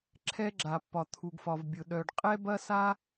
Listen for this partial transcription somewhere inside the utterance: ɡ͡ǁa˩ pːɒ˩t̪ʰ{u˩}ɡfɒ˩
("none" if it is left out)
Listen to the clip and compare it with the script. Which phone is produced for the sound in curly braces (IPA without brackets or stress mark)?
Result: u˩